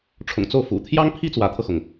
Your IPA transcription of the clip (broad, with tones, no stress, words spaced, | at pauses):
ʈ͡ʂʰʊ̰˨˩ŋt͡so˥˩ʊ̯fṵ˨˩ t̪ʰjɑ˥ŋpʰi˥ t͡swä˧˥t̪ʰɤ˧xʊ˩ŋ